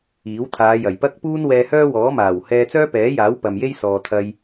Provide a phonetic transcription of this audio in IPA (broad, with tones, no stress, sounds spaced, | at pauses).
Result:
iː˨˥ w t̪ʰ aː˨˧ j ɐ˨˩ j p ɐ˥ k̚ p uː˥ n w ɛː˧ h œː˥ w ɔː˨˥ m aː˨˩ w h ɛː˧ t͡s œː˥ p ɛː˨˥ j aː˨˥ w p ɐ˨ m j e˥ j s ɔː˨ t̪ʰ ɐ˧ j